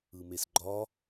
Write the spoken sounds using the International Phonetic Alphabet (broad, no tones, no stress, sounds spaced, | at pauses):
ɯ m e s ɡ͡ǃ ɒ